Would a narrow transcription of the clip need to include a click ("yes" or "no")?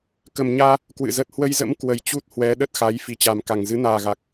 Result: no